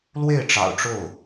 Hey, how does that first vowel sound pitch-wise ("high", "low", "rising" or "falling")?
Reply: falling